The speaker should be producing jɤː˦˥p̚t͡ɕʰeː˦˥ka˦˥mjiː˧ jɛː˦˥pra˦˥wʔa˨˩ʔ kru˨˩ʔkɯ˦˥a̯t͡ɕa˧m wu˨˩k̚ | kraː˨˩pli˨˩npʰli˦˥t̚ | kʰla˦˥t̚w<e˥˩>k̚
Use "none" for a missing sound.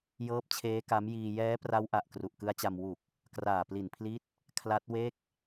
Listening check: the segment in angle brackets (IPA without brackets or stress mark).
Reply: e˥˩